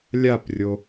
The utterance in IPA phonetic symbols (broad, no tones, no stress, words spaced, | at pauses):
lʲaprʲo